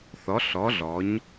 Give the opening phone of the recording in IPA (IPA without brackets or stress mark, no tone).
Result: θ